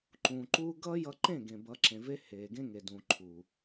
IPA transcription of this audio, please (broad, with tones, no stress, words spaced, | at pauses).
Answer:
ǃũː˨ǃuː˦ ɡʌ˦jʌ˧ǃẽ˦˨ ɡẽ˨bʌ˨˦ǁẽ˨ve˦ heː˨ɡẽ˦ ŋe˨ dũː˨ǃʰuː˨